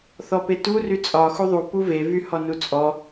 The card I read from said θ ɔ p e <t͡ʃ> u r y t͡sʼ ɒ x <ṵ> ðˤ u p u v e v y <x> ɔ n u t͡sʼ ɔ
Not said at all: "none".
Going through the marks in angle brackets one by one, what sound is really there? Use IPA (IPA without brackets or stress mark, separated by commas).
t, u, h